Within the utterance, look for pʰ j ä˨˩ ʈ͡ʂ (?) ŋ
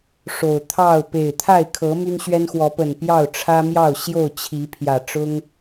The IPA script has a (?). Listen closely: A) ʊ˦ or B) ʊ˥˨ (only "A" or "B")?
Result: A